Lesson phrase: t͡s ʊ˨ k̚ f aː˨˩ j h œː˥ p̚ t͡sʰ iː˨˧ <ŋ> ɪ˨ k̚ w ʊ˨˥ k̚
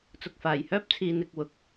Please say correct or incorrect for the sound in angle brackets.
incorrect